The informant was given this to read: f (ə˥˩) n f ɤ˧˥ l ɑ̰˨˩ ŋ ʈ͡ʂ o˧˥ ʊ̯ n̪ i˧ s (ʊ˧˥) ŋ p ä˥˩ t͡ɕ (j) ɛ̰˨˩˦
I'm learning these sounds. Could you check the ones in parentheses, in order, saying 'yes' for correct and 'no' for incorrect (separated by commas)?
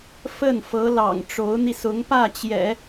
yes, yes, yes